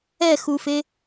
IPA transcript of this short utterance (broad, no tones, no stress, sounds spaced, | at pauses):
ɛ x u f e